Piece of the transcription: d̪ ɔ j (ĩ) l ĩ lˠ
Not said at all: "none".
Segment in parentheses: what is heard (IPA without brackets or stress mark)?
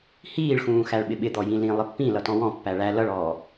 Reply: ĩ